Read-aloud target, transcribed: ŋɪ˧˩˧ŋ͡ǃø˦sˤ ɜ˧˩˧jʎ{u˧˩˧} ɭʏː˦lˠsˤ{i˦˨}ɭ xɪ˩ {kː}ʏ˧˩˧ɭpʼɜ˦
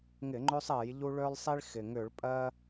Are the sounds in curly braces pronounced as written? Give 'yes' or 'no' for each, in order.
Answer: no, no, no

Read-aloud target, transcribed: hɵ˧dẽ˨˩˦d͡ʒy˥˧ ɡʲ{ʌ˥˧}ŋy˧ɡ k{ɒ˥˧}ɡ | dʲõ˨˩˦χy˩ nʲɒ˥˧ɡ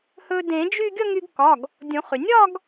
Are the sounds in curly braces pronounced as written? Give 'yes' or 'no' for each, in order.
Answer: yes, no

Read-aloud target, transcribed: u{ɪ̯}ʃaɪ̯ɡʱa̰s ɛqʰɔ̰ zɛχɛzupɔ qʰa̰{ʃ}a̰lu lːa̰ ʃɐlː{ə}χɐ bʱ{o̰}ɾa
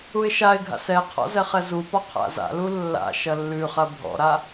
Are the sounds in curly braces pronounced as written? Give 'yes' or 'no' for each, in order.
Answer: yes, no, no, no

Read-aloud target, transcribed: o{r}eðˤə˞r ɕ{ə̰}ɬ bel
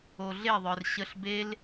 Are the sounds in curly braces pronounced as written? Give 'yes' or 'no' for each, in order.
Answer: no, no

